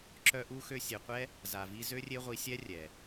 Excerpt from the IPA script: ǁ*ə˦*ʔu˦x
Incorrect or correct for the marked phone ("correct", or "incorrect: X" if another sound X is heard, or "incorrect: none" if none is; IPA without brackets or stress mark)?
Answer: incorrect: œ˦